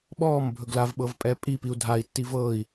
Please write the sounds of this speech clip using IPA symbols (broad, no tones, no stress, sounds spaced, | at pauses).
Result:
ɓ ɔː m bʱ ɵ ɡ l a v ɓ ɤ v pʼ ɛː pʼ i p i u̯ dʱ a i̯ tː i v ɤː i̯